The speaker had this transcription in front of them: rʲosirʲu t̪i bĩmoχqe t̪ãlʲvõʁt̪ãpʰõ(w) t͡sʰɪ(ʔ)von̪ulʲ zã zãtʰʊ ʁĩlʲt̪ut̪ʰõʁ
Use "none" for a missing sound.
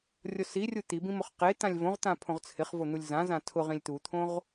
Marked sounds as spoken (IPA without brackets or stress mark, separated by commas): ʁ, χ